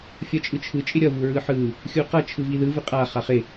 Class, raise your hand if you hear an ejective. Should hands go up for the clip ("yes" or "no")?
yes